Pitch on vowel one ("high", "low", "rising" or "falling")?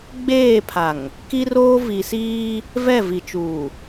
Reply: falling